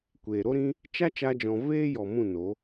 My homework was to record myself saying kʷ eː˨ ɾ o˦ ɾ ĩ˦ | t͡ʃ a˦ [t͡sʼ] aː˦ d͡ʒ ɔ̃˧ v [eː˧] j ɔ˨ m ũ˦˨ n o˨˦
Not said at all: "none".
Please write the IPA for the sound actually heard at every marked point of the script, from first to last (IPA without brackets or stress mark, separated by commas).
t͡ʃ, eː˦